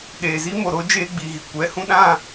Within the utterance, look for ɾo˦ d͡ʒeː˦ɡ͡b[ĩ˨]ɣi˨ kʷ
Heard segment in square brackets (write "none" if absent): i˨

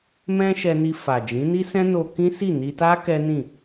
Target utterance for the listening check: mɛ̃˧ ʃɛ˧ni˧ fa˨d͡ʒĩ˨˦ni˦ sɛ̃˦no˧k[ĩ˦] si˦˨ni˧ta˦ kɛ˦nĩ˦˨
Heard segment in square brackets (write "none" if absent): ĩ˦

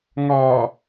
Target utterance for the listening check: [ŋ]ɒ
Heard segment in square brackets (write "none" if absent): ŋ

